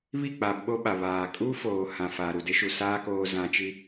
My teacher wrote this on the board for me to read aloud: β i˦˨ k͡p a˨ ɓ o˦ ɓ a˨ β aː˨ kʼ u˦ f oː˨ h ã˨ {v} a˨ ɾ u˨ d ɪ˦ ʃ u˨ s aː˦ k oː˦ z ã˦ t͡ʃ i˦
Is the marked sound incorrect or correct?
incorrect